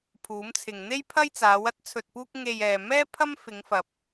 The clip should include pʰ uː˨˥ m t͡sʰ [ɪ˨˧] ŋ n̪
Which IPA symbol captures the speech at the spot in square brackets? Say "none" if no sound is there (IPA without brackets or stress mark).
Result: ɪ˨